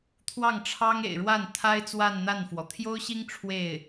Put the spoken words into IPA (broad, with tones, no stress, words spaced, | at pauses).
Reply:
t̪ʰwɑ˥˩ŋʈ͡ʂʰɑ˥ŋ ḛ˨˩ɪ̯ɻwa˥˩nt̪ʰa˥ɪ̯ t͡swa˥˧nn̪a˥˩nfwɔ˩ t̪ʰjo˥ʊ̯ɕi˥ŋ ʈ͡ʂʰwe˥˩ɪ̯